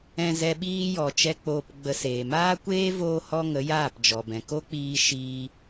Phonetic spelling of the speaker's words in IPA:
ɛ̃˧zɛ˧ɓiː˦jɔ˨ t͡ʃɛ˦k͡poː˧pɡ͡bə˧seː˨ maː˦kʷeː˦ voː˦hɔ˦ŋə˨˦ jaː˦˨pd͡ʒɔ˨bɛ̃˨ ko˦k͡piː˧ ʃiː˧

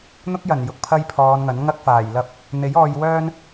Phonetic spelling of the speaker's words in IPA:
n̪ʊ˥k̚jɐ˨˩n jʊ˨k̚pʰɐ˥jpʰɔː˨˧nŋɐ˨˥n ŋɐ˥k̚faː˨˩j lɐ˧p̚ | n̪e˨˥jɔː˧jwœː˥n

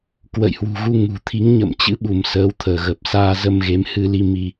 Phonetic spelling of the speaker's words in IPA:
kwə̰˧˨jhwṳ˨˩ɣu˧ŋṳ˨˩ t̪ʰi˨˦ŋɲə̰˧˨m t͡ɕɨ̰˧˥ɓu˧˩m səː˨˦wt̪ʰəː˧˩ɣə˨˩p̚ saː˧zə˧mɣe˨˦m hɨ˧li˧ mi˧

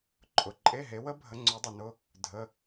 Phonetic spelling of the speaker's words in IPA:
ǃʼʊ˨ǃʼe˧˥˧ɦe˨˦wə˦˥ bʱə˨˦ŋ͡ǀœ˨˦dˤʊ˨nʊ˧˥˧ | dʱə˧˥˧

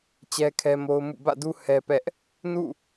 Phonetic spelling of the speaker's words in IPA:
t͡ɕɛ˦kʰɛ˦mo˦ʊ̯ mṵ˦˨ bä̰˦˨du˦ hɛ˦pɛ˦ʔ | nṵ˦˨

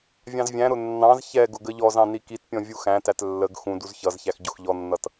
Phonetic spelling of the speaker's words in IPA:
vʲɑ̃zvʲæ̃ɾʊ nːɑ̃z çɛ ɡʊɡəʎɔzɑ̃ nikitpʲɔ̃ vʲuxæ̃tæt lːəɡ xũ duzçʌzçæx ɟʊxʎɔnːʌt

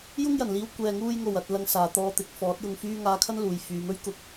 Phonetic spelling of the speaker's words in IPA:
jʊ˥ŋjɐ˨˩nliː˧w kʷɛː˨ŋuː˧jŋo˨˩w ɐ˨t̚ lɐ˧ŋsaː˨t̪ɔː˧t̪ɪ˨˥k̚ fɔː˨˥t̚jʊ˧ŋfyː˥ ŋaː˧kʰɐ˥nluː˨j fyː˨˧mɵ˥ɥ kʊ˧k̚

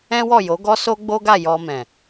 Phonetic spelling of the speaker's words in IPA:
ɛ̃˦wɔ˦˨ jo˨˦ɡɔ˦ so˦ ɡ͡bo˦ɡa˦˨ jɔ˧mɛ̃˨

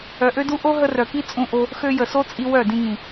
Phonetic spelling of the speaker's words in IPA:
œ˨ʔø˧du˧ ʔo˦ɦə˧rœ˨ki˦ t͡sʼũ˧ʔo˧ | xø˧jə˨so˦t͡sʼi˧ wœ˦˨dĩ˧ŋĩ˨

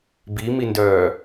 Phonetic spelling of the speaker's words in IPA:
bimindœː

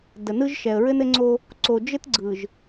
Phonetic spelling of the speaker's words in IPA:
də˨nɯ˦ʒ ʃɛ˨ə̯ɹɘ˦nɘ˦ŋ͡ǀo˦ | ǀo˨d͡ʒɘ˦tɡ͡ǀɯ˨ʒ

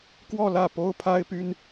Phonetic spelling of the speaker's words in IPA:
kwɔ˥˧lä˥˩ po˥ʊ̯pʰa˥ɪ̯py˥n

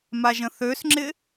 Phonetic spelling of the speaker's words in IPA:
maʒə̃θøsŋ͡ǁɪ

